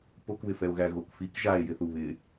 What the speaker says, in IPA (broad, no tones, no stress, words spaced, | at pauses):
pokβɪfɛo̯ɣæ ɣokfik ʒae̯jɪθu βɪ